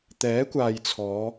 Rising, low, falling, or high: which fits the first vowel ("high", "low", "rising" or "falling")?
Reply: rising